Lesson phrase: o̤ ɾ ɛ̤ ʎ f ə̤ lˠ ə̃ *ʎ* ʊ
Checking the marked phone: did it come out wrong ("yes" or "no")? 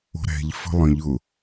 no